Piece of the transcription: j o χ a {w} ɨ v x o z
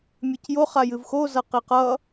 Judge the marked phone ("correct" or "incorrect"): incorrect